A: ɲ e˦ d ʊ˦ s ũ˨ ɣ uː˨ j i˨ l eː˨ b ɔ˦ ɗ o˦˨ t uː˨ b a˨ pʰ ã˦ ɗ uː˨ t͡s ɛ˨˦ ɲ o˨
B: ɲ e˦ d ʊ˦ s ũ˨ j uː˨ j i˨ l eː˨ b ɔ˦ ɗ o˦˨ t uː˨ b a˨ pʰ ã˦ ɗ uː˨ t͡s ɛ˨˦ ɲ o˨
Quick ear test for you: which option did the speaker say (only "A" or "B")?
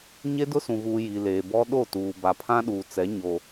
A